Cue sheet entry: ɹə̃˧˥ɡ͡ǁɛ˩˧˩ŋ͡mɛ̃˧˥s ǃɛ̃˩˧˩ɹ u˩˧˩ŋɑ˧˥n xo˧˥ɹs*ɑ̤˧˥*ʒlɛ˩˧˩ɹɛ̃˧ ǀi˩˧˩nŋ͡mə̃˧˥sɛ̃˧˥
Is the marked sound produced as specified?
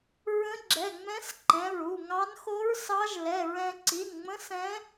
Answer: no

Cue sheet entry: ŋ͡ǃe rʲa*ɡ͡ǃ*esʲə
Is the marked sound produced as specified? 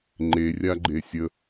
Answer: yes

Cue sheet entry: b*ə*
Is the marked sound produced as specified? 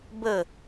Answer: yes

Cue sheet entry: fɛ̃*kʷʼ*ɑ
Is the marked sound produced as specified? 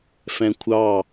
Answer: no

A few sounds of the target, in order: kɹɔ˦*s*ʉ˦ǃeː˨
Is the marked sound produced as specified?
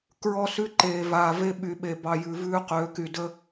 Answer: yes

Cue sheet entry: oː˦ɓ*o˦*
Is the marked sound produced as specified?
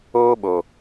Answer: no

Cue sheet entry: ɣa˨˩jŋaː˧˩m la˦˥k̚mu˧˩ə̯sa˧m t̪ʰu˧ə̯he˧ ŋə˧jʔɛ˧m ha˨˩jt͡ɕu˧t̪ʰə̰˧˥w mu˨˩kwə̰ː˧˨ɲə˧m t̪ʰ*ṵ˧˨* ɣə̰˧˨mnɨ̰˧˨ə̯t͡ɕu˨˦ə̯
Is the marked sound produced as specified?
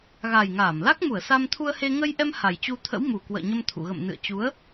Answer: yes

